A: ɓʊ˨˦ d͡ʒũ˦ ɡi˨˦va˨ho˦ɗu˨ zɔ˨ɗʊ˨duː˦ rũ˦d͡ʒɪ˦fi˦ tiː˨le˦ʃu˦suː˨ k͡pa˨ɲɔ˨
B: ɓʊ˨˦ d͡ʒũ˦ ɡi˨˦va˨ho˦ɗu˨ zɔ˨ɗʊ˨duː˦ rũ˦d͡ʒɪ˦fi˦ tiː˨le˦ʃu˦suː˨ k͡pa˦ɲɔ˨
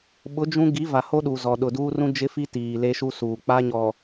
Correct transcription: B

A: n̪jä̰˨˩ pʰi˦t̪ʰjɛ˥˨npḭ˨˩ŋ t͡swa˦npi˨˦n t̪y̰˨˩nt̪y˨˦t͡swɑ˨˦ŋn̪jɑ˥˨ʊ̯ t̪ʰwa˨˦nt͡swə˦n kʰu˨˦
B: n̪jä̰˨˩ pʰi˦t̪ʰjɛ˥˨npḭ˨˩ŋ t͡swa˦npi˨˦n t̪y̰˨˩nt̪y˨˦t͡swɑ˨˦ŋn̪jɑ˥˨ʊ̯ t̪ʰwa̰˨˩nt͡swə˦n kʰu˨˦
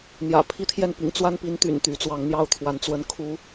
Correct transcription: A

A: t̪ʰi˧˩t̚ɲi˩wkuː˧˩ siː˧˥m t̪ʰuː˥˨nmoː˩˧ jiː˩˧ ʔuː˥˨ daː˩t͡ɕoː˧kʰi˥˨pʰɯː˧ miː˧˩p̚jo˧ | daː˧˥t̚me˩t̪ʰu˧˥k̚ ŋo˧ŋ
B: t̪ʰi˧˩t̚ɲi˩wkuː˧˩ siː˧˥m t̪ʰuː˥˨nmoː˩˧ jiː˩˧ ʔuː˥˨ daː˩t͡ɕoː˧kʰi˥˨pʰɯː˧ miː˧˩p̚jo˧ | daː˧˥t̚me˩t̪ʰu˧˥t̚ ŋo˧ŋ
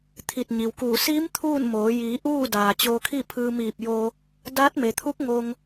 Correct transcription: A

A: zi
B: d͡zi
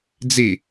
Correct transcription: B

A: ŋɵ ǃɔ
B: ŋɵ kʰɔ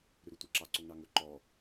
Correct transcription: A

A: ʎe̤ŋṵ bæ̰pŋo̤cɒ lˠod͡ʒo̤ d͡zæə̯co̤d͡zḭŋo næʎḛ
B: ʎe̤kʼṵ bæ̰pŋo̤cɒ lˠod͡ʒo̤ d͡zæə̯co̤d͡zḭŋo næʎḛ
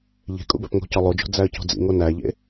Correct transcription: B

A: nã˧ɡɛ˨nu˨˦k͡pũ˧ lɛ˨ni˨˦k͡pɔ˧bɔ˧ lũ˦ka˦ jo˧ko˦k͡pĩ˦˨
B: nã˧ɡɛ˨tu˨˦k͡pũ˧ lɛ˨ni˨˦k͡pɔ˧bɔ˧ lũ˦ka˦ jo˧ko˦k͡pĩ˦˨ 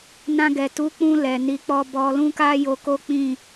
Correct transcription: B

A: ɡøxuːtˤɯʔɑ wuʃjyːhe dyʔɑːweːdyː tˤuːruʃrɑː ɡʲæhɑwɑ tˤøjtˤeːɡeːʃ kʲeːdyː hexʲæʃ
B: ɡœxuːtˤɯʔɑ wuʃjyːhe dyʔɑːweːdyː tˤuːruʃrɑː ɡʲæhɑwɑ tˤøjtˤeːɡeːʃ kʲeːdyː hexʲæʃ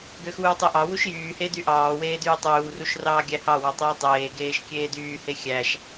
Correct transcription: A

